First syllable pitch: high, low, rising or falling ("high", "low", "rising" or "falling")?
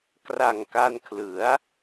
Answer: low